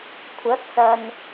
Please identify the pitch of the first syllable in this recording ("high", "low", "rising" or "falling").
rising